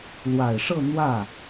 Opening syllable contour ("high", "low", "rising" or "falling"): low